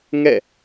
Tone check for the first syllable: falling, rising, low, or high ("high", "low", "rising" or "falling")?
falling